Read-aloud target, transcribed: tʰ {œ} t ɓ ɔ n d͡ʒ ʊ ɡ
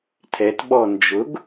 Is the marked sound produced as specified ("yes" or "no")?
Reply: no